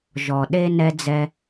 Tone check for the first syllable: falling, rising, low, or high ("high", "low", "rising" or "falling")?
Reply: low